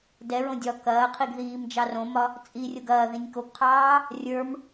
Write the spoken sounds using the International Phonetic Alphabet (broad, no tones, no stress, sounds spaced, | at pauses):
d ɛ ɹ õ dʲ ɒ k ɐː qʰ i ɡ ð iː m d͡ʒ ɑ r õ m ɒ | t͡sʼ i rʲ o ɡ ɐː ð ĩ nʲ k o ɡ qʰ ɑː | rʲ ə˞ m